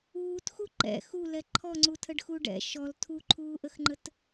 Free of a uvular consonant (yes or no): yes